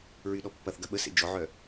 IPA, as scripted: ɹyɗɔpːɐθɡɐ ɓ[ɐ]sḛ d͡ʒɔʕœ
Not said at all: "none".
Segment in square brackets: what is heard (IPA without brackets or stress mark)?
ə